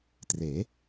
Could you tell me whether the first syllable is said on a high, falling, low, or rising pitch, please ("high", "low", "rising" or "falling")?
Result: rising